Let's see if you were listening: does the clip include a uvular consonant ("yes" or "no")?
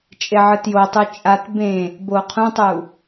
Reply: yes